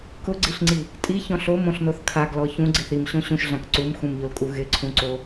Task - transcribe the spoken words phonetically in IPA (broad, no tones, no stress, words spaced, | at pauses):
kʊɡ͡ǀiɬŋ͡ǀi | tʼiçɔ̃ɬ omõɬnoθ kʰaɡlɔ çũɡ͡ǀiθ imɕõ ɕũʃɮãk ǀumxũmʎolkʼu ɣɪǀʰũǀo